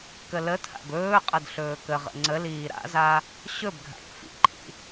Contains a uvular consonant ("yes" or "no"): yes